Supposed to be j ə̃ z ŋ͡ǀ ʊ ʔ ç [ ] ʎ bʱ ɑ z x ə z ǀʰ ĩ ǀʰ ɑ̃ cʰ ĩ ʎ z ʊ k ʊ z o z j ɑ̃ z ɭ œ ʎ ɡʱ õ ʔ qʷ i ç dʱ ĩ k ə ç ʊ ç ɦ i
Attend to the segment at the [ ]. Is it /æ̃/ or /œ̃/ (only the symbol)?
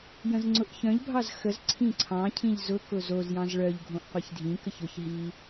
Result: œ̃